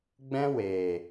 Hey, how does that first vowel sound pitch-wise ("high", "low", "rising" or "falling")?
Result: high